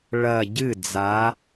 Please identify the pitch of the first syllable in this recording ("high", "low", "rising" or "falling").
low